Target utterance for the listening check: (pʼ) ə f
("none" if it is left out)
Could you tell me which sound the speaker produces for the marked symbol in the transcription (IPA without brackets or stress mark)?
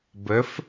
b